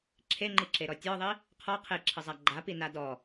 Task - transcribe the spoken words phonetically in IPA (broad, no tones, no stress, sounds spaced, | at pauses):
ǁʰ e ŋ͡ǃ i ǁ e ɾ ɔ tʲ ɔ ðˤ i | qʰ ɔ qʰ e ǁʰ ə zˤ a ɡ͡ǃ a p i n a d ɔ